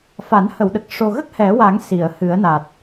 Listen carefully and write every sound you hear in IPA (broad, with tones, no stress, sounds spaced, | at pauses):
f a˨˩˦ n h ə˨˩˨ w ɗ ə˨˩ k̚ ʂ o˨˩ ɣ ə˦˥ k̚ h ɛ˨˩˦ w a˨˩˦ ŋ s i˨˩˨ ə̯ h ɨ˨˩˦ ə̯ n a˨˩ t̚